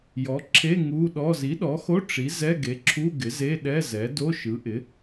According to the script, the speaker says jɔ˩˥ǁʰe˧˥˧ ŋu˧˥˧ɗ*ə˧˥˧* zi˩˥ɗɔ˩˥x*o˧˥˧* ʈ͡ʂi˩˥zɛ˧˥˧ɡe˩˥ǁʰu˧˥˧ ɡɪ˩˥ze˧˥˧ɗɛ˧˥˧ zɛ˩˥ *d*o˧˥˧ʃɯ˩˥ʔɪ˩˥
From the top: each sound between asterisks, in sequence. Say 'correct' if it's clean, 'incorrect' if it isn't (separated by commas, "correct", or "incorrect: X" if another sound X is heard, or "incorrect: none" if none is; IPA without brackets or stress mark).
incorrect: ɔ˧˥˧, correct, correct